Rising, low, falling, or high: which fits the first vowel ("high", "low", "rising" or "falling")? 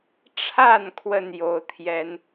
falling